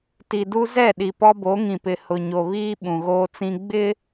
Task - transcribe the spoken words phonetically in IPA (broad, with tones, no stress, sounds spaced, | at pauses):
t i˨ d u˦ z ɛ˦˨ ɗ i˨ p ɔ˦ b o˨˦ ŋ ĩ˨ p ɪ˨ h ʊ˨ ɲ o˨ β iː˦ ɓ ũ˨ ɣ oː˦ t͡s ĩ˦ ɡ͡b ɪ˦